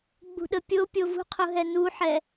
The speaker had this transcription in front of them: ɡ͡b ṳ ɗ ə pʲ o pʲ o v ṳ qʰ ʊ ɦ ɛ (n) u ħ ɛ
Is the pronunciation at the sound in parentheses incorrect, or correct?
correct